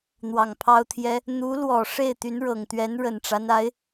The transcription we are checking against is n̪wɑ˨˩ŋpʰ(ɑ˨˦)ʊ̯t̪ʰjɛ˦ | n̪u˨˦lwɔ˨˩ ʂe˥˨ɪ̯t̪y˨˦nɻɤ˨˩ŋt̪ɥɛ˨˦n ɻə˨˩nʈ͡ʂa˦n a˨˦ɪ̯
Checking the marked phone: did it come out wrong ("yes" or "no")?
yes